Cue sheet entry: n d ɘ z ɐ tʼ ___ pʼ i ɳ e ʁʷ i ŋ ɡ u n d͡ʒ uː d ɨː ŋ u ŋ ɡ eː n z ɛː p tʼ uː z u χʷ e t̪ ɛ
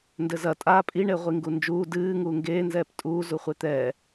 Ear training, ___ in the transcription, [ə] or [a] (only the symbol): a